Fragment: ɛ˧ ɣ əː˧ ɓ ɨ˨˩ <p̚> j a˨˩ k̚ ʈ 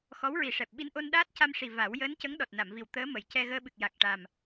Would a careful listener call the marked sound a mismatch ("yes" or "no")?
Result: yes